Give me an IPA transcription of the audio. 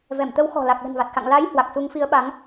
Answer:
v ɛ˧˩ m t̪ ə˨˦ w x ɔ̤˨˩ l a˨˩ k̚ l ə̤˨˩ n v a˨˩ t̚ x a̰˧˨ ŋ l a˨˦ j h w a˨˩ k̚ s u˨˦ ŋ f i˨˦ ə̯ ɓ a˨˦ ŋ

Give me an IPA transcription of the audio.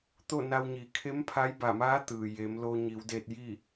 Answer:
t̪ o˥˨ n a˧ w ɲ i˩˧ kʰ e˧˥ m pʰ a˧˥ j b a˧˩ m aː˧˥ t̪ ɯː˩ j e˩˧ m l o˧ ɲ i˩˧ w d e˧ t̚ j i˥˨

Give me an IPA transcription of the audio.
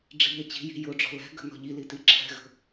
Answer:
ɖ͡ʐ i̤ ʎ ɛ t͡ɕ i̤ j i̤ j ʊ ɖ͡ʐ ɔ̤ l ɛ̤ ɡ ə̤ n ɔ̤ ʎ i l i t i ǁʰ ɛ̤ ɣ ə̤

